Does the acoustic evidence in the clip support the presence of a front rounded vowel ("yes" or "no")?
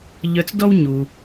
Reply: yes